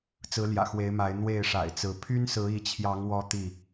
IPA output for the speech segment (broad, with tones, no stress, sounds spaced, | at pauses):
t͡s ɹ̩˨˦ l j ä̰˨˩ x w e˨˦ ɪ̯ m a˨˦ ɪ̯ n̪ w e˥˨ ɪ̯ ʂ a̰˨˩ ɪ̯ t͡s ɹ̩˨˦ pʰ y˦ n s ɹ̩˨˦ i˨˦ t͡ɕʰ j ɑ˨˦ ŋ w ɔ˦ t̪ i˥˨